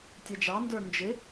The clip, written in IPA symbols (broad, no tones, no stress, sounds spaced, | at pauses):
tʲ ɛ d͡ʒ ɑ n d ə˞ n d͡ʒ ɪ